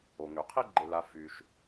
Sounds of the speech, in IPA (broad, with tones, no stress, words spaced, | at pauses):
o˩ŋø˩ qʰi˥ɡ͡ǃe˨la˨ fy˩ʃ